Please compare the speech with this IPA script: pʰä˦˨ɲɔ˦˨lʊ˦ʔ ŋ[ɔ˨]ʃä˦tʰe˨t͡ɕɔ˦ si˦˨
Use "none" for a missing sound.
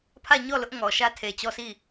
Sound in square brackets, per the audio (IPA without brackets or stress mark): ɔ˨